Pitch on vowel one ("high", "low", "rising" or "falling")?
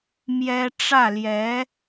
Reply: high